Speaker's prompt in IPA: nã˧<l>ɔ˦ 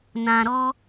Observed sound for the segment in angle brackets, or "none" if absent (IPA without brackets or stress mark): ɾ